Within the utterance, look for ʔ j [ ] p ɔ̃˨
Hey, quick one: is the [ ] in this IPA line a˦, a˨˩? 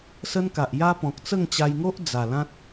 a˦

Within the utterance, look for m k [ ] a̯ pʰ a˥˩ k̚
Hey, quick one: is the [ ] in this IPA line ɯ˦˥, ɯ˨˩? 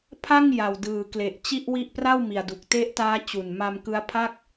ɯ˦˥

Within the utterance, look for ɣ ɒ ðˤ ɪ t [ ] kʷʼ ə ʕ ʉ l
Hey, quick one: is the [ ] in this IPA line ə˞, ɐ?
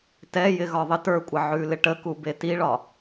ə˞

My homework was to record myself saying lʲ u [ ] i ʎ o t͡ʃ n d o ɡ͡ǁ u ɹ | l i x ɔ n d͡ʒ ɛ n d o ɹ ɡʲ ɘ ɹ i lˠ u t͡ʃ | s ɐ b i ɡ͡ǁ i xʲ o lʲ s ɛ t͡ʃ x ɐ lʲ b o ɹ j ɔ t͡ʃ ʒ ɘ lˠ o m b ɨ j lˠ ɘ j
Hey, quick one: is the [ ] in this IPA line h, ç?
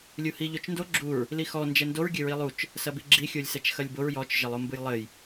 h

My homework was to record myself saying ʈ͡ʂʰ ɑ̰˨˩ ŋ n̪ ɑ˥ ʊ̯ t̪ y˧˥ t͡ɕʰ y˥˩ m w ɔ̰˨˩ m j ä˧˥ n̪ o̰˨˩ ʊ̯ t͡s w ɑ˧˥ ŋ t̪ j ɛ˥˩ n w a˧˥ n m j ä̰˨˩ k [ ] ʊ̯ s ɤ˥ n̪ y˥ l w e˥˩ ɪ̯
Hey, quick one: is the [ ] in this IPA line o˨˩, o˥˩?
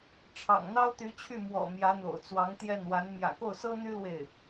o˥˩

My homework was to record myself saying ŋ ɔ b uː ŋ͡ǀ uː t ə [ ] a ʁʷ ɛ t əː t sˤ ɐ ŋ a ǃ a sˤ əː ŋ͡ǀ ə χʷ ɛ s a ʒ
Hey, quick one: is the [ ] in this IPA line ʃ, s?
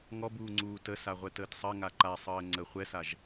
s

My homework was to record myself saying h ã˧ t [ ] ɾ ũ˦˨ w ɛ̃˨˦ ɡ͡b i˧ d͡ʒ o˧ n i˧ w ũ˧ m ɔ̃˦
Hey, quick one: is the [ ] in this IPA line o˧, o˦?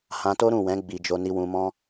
o˦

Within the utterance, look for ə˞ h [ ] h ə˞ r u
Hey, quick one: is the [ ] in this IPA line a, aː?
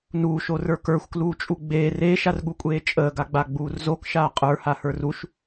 a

